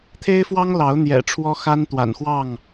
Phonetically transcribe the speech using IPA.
t̪ʰ e˦ ɪ̯ f w ɑ˦ ŋ l ɑ˨˦ ʊ̯ n̪ j ɛ̰˨˩ ʈ͡ʂʰ w ɔ˦ x a˦ n t̪ w a̰˨˩ n x w ɑ˥˨ ŋ

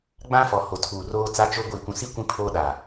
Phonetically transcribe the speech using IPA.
ɡ͡b ã˦ f ɔ˨ h o˨ tʰ uː˨ r oː˦ t͡s a˦ t͡ʃ o˦ ɡʷ iː˨ kʷ ũ˨ s i˦ kʷ ĩ˦ pʰ oː˦ ɗ aː˨

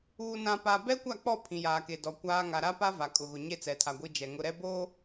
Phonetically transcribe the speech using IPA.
uː˨ n ã˨ p a˨ b ɛ˦ kʷ a˦˨ k͡p ɔ˦˨ pʰ ĩ˨ j aː˨ k e˨ d ɔ˨ kʷ aː˨ ŋ a˨ ɾ a˦ p a˦ v a˨ kʼ ʊ˨ ɣ ʊ˨ ɲ e˦ t͡s ɛ˨ tʰ a˨ ɡʷ i˦ d͡ʒ ɛ˨ ŋ ʊ˦ ɾ ɛ˦ b oː˦

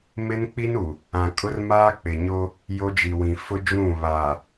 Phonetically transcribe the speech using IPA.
m ɪ˦ n k͡p i˦ n u˨ | ã˨ kʼ ʊ˦ r m aː˦ k͡p ɪ˨ ɲ o˦ | j o˦ d͡ʒ i˨ w ĩ˨ f ʊ˦ d͡ʒ ũ˦˨ β aː˨

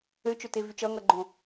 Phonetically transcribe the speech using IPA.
ø t͡ʃ ø t e v y t͡ʃ ʌ ŋ ʌ ɡ͡ǃ õ

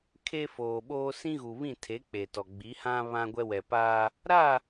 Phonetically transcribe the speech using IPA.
kʰ e˦ f oː˨ ɓ oː˦ s ĩ˦ ɣ u˨ β ĩ˦˨ tʰ e˨˦ k͡p e˨ t ɔ˨ ɡ͡b i˨˦ h ã˦ β ã˦ ɡʷ ɛ˦ w ɛ˨ p aː˦ | ɾ a˦˨

